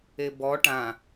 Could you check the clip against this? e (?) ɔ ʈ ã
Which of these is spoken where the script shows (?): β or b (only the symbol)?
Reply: b